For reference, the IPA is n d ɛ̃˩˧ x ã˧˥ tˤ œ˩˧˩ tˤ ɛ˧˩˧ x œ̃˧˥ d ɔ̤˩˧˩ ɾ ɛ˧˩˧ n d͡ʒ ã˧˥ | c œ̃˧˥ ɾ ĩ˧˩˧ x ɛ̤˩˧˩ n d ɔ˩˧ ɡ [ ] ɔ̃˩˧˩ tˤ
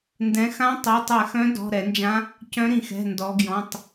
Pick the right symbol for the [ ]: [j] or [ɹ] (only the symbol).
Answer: j